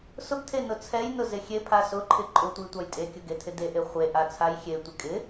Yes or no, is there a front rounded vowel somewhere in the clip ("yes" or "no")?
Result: no